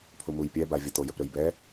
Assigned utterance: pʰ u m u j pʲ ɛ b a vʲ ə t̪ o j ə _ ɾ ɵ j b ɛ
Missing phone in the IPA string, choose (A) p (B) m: A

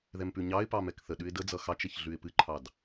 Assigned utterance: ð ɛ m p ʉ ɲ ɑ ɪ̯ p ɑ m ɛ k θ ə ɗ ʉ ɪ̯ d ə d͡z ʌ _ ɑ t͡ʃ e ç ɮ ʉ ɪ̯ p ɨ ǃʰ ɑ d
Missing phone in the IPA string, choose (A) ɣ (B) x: B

